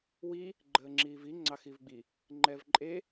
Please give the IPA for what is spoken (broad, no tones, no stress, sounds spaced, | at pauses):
w i | ɡ͡ǃ əː ŋ͡ǁ iː v i ŋ͡ǀ ɑ x i v ɡ͡b i | ŋ͡ǃ ɛ v ǃʼ e